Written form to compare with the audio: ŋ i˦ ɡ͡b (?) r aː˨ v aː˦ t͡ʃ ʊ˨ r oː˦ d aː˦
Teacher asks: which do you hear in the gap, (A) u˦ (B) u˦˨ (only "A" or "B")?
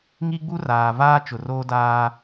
A